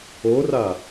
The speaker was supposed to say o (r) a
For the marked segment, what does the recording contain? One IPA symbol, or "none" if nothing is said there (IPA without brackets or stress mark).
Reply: r